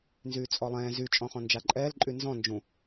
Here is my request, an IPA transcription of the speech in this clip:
n z yː t͡sʼ ɔ lˠ ɛ̃ː z y t͡ʃʼ ɔ̃ χ ɔ̃ n d͡ʒ a ǃʼ ɛː l ǃʼ y n z ɔ̃ n d͡ʒ ũ

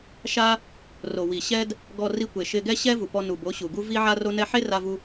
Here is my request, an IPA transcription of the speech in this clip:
ʃ a˦ | r o˨ w i˨ ɕ ɛ˦ d | ɡ ɔ˧ r i˧ kʷ e˨ ʃ ɪ˧ ɡ ɛ˦ ɕ ɛ˦ v u˨ p ɔ˧ n u˨ b o˨˦ ɕ u˨ ɡ u˦ v i˦ ʕ a˦ r o˦ n ɛ˧ ħ e˦ r a˧ v u˧

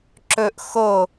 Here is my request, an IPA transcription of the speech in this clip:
ǁ ɵ ʔ x o

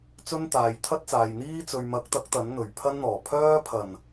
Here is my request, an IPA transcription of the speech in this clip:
t͡s ɵ˥ n t̪ aː˨ j t̪ʰ ɐ˥ t̚ t͡s aː˨ j n̪ iː˥ t͡s ɵ˨ ɥ m ɐ˨˥ k̚ t̪ ɐ˨˥ k̚ t̪ ɐ˨˥ n n̪ ɵ˨˩ ɥ pʰ ɐ˥ n n̪ ɔː˨˩ pʰ œː˥ pʰ ɐ˨˩ n

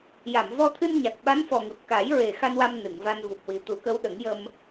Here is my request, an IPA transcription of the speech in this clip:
j a˨˩˨ m v ɔ˧ t̪ʰ ɨ˧ n ɲ a˨˩ k̚ ɓ a˧˥ n f ɔ˨˩ ŋ ɨ˨˩ p̚ k a˨˩˦ j ɹ e˨˩ x a˧ n w a˧ m n ɨ˨˩˨ ŋ v a˧ n v u˨˩ p̚ w i˨˩ t̪ u˨˩˦ k ə˧˥ w ɗ ə˨˩˦ ŋ j ə˧ m

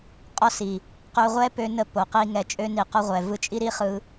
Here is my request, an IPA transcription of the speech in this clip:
qʼ ɔ˦ s i˨ | q ø˧ ʁʷ ɛ˦ p ø˧ n ə˧ p o˨ q i˦ ŋ ɛ˧ t͡ʃʼ ø˧ n i˨ q ɔ˧ ʁʷ ɛ˨ v ɯ˦ t͡ʃʼ i˦ ɾ i˦ χ ɯ˧

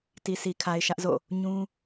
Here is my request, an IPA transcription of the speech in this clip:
t i˨ s i˨ kʰ a˨ ɪ̯ ʃ ä˦ ʔ z o̰˦˨ | ɲ ũ˦

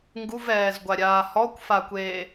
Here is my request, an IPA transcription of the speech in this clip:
ŋ ɡ u v ɛː z ɡʷ a ɾʲ aː h ɔ kʷ f a kʷ eː

